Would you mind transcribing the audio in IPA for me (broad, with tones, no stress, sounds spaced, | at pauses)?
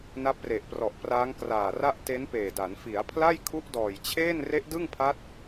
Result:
n a˦˥ p̚ r e˨˩ ʔ p r ɔ˨˩ ʔ p r aː˦˥ ŋ k r aː˨˩ r a˥˩ ʔ t e˦˥ n p eː˨˩ d a˩˦ n f i˩˦ a̯ pʰ l a˥˩ j kʰ u˦˥ ʔ d ɔː˨˩ j t͡ɕʰ eː˥˩ n r e˦˥ ʔ d ɯ˥˩ ŋ pʰ a˦˥ t̚